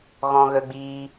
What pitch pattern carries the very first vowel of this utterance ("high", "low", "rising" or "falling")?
high